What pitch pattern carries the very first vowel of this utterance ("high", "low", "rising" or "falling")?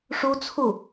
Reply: high